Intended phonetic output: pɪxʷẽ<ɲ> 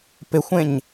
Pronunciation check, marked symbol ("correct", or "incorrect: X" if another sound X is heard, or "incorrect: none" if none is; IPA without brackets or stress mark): correct